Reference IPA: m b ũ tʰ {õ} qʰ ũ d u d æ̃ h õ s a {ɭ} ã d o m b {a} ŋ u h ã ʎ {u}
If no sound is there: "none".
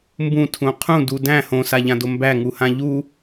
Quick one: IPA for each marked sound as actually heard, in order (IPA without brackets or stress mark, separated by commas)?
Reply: ũ, ʎ, æ, u